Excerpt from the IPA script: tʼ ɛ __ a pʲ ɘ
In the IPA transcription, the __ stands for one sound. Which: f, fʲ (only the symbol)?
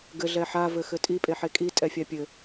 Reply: fʲ